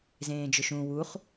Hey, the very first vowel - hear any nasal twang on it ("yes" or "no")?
yes